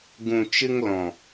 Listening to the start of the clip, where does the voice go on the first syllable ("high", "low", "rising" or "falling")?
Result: low